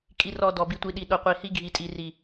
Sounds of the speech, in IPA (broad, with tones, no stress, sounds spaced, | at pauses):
kʼ i˨ r ɔ˨ d ɔ˨ b i˨ tʷ i˨ ɗ i˨ ɗ o˨ qʷ i˨ h i˦ ɡʱ i˨ tʼ i˨ r i˦